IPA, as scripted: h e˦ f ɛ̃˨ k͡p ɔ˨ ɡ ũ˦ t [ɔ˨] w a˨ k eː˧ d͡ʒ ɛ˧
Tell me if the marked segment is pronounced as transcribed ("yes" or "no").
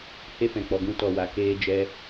yes